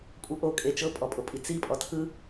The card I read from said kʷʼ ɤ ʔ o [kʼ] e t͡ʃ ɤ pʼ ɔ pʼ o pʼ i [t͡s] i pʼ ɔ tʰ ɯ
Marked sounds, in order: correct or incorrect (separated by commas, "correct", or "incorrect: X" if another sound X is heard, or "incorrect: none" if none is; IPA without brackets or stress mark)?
correct, correct